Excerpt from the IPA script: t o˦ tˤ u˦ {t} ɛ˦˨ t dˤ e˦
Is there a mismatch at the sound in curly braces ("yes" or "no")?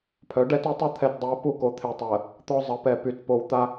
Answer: yes